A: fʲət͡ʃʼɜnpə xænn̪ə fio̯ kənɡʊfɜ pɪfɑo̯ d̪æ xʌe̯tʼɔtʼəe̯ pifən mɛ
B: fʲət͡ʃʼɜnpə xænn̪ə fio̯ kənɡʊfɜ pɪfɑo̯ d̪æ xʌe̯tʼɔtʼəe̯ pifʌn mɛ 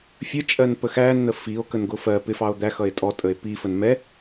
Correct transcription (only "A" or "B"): A